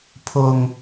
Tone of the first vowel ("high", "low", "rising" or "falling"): high